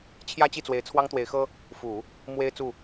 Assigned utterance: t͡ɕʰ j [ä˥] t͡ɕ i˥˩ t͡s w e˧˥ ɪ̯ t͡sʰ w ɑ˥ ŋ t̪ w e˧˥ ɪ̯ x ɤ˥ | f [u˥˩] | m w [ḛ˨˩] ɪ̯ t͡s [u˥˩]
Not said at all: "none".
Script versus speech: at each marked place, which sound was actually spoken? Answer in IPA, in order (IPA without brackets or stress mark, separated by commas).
ä˥, u˨˩˦, e˥, u˥˩